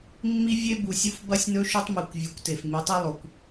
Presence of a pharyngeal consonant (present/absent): absent